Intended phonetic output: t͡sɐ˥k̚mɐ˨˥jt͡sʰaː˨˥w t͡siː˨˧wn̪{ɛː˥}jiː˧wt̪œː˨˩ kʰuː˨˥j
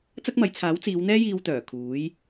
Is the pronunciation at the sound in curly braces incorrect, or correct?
correct